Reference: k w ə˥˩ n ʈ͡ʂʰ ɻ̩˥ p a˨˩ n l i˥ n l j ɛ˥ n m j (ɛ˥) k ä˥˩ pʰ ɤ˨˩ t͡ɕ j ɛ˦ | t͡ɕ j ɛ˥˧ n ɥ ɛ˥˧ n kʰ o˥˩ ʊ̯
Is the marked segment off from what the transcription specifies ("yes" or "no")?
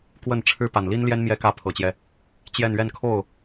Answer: no